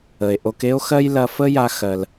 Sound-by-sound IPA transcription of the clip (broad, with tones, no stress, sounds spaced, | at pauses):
ə˨ e̯ ʔ o˧ k e˦ o̯ x ɜ˦ j l ɐ˧ f ə˦ j a˧ x ɜ˧ l